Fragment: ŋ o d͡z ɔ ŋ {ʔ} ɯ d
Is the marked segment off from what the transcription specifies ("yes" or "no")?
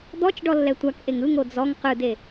yes